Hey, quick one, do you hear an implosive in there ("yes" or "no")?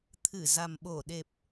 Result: yes